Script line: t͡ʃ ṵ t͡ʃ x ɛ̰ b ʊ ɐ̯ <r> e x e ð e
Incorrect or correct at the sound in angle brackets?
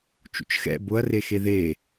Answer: correct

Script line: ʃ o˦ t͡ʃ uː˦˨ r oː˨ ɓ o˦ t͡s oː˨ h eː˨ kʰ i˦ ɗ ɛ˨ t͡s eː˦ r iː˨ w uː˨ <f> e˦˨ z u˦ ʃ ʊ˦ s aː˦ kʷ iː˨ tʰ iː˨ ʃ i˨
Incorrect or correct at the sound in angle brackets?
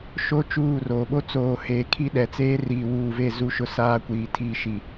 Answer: incorrect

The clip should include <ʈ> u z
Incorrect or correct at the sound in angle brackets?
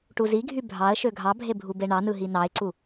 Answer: correct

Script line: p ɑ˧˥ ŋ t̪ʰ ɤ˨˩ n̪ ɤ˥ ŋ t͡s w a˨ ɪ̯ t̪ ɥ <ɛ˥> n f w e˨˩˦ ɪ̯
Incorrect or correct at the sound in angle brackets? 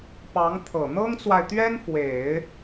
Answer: correct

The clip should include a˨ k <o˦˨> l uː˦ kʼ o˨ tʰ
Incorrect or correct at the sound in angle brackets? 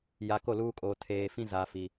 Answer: correct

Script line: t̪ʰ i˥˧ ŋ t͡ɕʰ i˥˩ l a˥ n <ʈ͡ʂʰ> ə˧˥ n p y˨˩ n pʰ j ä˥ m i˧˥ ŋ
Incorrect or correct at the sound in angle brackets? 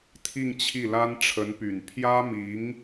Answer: correct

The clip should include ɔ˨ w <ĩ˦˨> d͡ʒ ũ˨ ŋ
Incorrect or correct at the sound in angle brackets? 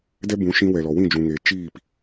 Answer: correct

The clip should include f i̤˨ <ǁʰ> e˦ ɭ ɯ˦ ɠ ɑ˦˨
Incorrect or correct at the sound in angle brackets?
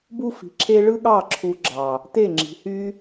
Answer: correct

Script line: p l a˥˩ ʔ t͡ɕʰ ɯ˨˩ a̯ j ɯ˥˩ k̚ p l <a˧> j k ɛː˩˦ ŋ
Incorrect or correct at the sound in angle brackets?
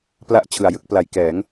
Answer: incorrect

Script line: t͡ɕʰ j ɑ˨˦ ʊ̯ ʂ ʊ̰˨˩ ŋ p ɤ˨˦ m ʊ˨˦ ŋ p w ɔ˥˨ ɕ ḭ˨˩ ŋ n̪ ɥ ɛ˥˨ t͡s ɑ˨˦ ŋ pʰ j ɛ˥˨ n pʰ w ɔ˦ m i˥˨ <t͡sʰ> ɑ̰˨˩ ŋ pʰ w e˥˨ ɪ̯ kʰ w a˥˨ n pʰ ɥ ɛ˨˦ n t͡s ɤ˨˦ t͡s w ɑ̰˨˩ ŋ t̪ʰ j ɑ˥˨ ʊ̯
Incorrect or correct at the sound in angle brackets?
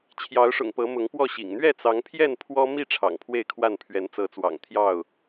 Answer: incorrect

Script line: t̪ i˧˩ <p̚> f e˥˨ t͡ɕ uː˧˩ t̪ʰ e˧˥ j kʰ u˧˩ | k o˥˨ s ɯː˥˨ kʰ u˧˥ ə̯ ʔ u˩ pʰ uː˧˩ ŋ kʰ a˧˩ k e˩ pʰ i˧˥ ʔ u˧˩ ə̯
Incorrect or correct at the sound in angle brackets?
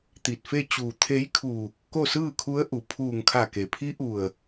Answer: incorrect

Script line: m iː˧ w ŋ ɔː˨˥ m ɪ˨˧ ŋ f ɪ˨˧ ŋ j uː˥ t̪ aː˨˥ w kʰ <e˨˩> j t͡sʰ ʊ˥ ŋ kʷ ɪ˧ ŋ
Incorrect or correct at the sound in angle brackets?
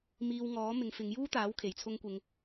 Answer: correct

